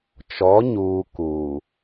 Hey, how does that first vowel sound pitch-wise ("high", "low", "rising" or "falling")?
rising